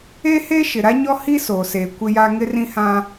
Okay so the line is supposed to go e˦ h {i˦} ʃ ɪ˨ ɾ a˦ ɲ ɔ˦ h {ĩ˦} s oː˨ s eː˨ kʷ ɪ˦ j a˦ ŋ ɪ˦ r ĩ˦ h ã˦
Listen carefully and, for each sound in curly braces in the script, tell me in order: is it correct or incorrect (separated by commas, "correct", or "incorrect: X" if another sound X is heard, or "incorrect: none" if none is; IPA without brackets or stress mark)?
incorrect: e˦, incorrect: i˦